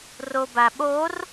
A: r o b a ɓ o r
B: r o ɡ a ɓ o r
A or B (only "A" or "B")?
A